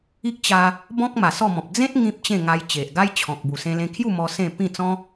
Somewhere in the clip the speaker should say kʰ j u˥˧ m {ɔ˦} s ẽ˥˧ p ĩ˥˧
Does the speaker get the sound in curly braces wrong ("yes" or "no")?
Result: yes